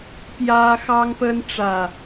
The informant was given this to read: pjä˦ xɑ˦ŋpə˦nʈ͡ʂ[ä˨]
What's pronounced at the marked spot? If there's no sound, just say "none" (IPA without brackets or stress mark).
ä˨